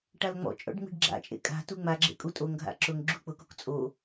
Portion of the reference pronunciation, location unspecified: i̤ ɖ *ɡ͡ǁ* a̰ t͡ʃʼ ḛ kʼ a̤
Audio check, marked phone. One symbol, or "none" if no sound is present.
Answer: ɡ͡ǁ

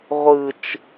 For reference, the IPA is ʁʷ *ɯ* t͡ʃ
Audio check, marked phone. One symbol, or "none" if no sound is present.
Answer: ɯ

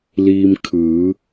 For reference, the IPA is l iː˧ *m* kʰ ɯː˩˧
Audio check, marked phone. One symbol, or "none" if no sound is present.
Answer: m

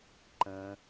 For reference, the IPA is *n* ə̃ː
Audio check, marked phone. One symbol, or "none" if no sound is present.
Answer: ǃ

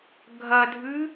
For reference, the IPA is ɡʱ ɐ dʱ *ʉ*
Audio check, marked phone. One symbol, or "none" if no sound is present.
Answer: ʉ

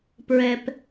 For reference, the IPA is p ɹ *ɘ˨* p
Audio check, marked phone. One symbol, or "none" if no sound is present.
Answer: ɛ˨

